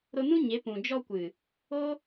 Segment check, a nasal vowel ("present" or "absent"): present